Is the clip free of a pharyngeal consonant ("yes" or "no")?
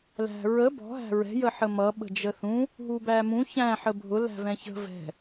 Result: no